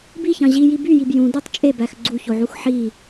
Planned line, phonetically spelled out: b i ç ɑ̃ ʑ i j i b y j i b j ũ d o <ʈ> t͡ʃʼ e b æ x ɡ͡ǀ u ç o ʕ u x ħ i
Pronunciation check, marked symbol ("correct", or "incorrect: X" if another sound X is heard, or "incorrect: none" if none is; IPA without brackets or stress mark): incorrect: tˤ